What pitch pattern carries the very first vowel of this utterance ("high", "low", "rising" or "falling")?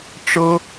high